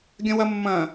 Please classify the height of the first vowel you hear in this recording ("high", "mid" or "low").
low